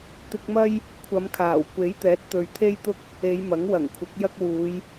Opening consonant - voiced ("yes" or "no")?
no